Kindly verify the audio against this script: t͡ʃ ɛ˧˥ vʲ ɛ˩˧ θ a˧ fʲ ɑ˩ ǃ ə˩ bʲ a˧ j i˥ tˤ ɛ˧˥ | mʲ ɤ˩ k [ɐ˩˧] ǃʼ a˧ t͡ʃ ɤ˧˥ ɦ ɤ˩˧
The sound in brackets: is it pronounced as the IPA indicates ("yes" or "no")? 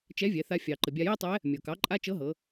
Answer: no